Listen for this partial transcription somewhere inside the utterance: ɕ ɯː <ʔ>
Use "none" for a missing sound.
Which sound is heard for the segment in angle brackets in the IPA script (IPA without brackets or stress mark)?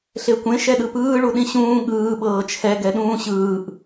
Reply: ʔ